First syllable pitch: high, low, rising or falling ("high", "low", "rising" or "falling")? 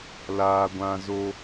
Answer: high